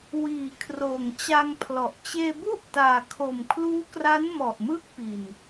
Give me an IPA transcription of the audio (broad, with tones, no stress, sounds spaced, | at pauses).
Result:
w iː˩˦ kʰ r oː˨˩ ŋ t͡ɕ a˧ ŋ pʰ l ɔ˨˩ ʔ t͡ɕ eː˧ b u˥˩ ʔ t aː˨˩ kʰ o˨˩ m kʰ l uː˦˥ k r a˦˥ n m ɔ˨˩ ʔ m ɯ˥˩ k̚ p i˨˩ n